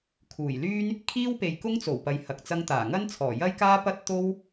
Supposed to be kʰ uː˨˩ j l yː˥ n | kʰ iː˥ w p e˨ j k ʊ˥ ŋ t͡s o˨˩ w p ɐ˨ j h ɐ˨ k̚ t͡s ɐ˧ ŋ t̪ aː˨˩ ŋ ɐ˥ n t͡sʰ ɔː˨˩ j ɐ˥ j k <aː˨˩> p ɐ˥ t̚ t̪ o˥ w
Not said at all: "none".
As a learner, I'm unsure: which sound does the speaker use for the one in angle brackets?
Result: aː˥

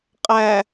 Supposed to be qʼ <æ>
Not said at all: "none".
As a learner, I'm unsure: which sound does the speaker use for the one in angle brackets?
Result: æ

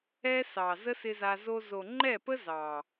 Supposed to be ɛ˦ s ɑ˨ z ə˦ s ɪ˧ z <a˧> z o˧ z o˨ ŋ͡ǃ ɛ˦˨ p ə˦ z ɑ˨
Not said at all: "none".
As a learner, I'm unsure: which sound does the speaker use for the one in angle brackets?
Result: a˧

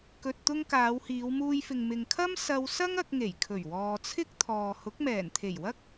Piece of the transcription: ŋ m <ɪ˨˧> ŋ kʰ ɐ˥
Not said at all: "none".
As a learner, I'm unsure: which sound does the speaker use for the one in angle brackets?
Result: ɪ˨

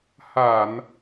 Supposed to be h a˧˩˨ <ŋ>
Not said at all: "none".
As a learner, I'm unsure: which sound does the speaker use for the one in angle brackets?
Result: n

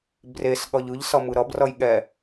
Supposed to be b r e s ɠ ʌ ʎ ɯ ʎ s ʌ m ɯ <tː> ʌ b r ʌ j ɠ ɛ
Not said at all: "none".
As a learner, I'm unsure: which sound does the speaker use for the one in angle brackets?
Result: ɾ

